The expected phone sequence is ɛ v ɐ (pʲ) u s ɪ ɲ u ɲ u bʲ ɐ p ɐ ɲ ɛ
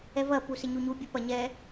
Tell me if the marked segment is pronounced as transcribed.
no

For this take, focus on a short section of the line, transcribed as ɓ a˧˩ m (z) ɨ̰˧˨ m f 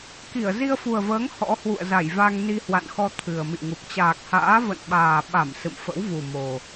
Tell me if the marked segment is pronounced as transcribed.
no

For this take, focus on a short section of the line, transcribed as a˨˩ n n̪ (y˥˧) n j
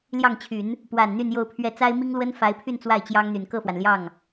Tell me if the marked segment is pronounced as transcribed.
yes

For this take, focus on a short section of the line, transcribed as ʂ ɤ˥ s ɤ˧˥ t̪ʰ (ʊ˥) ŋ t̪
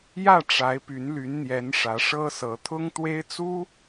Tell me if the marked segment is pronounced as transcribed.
yes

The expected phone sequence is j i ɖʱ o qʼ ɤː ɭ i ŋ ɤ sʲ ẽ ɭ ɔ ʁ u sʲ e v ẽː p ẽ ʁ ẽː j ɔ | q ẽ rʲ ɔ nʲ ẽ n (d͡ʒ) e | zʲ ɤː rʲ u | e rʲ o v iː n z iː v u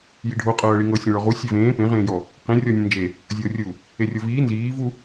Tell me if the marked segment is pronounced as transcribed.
yes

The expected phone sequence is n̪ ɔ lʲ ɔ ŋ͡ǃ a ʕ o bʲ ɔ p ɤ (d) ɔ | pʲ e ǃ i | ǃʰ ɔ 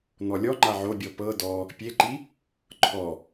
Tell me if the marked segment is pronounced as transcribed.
yes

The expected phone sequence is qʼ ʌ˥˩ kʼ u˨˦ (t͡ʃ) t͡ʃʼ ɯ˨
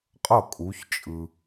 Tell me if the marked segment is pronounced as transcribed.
no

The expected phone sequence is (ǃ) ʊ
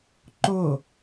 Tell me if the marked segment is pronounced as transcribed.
yes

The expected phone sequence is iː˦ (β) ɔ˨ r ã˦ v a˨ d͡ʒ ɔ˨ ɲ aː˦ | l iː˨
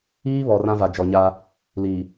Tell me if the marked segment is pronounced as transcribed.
yes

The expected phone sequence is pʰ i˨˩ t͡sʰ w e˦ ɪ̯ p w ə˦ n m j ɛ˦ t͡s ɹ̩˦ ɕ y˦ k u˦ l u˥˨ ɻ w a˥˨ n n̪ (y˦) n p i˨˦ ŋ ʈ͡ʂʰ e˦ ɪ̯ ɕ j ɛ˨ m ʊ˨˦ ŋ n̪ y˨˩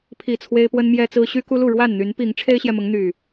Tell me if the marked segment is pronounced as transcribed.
no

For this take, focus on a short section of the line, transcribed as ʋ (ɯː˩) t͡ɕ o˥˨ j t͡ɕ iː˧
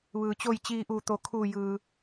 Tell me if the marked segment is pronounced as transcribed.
yes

